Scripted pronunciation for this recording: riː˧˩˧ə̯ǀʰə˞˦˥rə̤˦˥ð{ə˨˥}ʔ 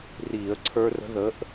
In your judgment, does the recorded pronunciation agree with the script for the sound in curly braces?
yes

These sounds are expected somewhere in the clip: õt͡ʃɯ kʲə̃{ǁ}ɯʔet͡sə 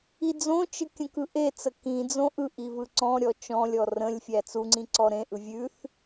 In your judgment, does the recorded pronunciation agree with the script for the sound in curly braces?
no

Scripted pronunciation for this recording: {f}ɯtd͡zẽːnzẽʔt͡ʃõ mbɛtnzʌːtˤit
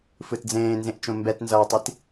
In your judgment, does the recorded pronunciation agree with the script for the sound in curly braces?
yes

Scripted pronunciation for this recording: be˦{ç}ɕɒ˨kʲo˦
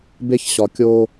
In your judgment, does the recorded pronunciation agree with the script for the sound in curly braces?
yes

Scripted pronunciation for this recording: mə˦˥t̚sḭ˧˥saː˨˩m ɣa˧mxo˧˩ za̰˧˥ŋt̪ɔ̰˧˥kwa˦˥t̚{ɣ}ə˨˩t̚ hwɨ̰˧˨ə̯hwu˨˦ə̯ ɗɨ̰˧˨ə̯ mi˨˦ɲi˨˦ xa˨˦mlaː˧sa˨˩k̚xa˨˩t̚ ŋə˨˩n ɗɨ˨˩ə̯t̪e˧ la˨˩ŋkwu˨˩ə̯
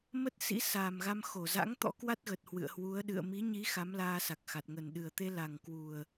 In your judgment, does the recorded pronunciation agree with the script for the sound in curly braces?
yes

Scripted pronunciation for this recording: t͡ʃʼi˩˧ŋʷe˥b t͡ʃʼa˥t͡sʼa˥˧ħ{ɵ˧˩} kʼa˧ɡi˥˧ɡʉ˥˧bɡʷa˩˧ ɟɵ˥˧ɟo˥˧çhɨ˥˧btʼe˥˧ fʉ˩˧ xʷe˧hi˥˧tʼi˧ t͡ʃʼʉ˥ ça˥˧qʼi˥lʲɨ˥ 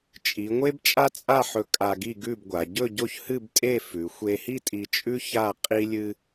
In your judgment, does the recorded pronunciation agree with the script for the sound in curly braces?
yes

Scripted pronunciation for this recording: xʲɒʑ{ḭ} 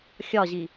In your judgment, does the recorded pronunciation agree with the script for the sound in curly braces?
no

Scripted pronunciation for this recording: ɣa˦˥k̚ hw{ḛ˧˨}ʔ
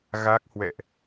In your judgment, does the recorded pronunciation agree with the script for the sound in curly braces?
no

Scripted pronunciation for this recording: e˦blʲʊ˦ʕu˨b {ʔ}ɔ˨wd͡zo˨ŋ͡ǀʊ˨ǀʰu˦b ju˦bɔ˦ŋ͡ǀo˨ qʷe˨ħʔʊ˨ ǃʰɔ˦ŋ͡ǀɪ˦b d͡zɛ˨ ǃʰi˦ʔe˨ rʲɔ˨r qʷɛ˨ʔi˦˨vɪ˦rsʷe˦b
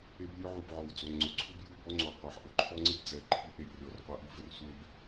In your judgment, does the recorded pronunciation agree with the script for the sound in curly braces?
no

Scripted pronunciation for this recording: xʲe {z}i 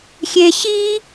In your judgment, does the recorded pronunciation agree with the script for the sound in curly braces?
no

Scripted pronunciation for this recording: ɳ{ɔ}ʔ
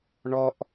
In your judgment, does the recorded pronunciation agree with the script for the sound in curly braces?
yes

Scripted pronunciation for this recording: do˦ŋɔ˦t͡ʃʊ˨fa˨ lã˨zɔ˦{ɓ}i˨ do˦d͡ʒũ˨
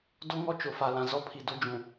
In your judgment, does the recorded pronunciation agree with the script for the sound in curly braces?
no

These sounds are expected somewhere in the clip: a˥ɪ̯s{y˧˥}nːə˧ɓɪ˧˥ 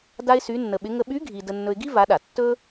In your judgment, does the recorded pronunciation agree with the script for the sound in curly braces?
yes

